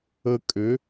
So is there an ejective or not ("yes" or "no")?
yes